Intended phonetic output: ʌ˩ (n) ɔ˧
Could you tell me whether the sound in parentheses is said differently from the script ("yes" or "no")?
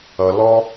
yes